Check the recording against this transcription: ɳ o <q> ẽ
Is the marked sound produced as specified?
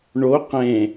yes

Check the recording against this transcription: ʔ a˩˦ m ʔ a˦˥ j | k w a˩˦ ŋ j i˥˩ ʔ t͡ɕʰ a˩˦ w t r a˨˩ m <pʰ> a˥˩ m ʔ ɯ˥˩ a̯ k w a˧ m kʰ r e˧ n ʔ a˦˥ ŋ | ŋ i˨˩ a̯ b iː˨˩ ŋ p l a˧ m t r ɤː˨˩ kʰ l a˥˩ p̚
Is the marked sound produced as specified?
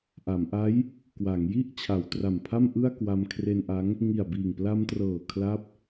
yes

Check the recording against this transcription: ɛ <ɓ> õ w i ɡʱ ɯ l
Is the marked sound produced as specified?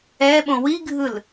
yes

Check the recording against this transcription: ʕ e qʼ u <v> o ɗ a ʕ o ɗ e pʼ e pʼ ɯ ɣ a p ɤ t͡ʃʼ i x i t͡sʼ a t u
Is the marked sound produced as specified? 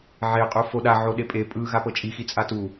no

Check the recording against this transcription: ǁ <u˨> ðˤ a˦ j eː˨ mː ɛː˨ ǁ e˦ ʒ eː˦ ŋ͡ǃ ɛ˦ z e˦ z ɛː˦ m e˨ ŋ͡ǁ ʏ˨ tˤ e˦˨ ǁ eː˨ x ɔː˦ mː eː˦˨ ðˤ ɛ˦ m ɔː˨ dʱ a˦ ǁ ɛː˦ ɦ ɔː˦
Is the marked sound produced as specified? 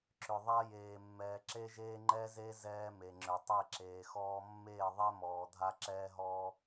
no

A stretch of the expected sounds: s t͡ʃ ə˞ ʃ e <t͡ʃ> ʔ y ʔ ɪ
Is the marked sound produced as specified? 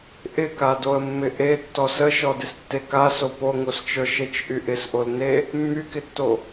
yes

